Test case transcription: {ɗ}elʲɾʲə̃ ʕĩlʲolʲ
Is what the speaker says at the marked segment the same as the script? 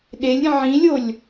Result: yes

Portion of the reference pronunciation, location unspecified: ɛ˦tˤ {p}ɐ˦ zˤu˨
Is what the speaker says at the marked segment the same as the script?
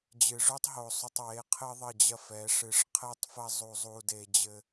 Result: no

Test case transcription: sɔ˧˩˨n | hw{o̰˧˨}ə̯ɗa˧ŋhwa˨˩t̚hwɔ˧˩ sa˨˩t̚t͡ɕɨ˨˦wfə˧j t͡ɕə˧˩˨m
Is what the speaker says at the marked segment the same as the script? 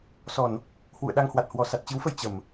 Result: no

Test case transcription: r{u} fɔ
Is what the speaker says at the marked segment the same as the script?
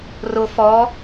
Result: no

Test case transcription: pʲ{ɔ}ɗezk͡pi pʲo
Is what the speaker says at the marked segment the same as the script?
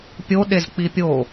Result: no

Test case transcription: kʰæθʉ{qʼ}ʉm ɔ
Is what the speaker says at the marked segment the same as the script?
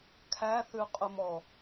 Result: yes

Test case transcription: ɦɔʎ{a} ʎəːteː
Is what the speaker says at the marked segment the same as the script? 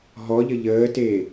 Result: no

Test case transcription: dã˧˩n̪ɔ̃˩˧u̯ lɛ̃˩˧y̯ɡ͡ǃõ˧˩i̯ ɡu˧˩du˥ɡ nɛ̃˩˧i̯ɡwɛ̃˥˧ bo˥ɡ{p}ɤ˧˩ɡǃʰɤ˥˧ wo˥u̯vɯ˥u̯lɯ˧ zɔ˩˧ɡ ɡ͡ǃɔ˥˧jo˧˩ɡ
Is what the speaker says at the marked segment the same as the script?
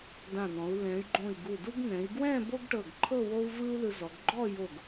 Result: no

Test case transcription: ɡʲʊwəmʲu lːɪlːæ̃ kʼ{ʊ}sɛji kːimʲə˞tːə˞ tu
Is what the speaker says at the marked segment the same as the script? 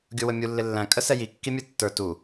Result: no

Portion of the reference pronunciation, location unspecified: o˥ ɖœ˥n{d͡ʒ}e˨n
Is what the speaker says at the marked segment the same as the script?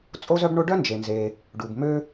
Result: yes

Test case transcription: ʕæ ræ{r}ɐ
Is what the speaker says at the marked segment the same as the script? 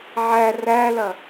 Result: no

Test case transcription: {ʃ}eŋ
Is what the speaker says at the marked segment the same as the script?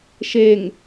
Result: yes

